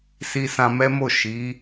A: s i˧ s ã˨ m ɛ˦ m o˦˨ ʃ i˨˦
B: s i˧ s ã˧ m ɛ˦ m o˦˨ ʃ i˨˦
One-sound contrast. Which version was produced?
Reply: B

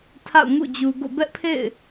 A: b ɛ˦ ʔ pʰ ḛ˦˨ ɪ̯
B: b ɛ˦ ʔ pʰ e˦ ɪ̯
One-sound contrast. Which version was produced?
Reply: A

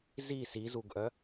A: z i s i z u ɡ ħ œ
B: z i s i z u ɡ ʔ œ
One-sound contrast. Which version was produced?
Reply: B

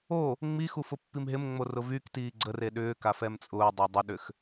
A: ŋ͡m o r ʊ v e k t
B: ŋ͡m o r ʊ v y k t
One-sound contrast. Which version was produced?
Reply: B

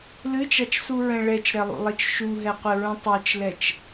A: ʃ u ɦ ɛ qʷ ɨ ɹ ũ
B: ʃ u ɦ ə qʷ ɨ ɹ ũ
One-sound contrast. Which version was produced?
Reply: A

